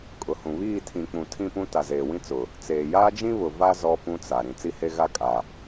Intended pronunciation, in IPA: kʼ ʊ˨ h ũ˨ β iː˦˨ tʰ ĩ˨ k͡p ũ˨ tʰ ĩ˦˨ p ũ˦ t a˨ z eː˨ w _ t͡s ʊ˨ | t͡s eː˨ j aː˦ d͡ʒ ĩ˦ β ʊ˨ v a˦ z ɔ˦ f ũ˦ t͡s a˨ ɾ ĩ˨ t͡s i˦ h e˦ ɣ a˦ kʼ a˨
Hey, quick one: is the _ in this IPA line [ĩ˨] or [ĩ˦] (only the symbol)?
ĩ˦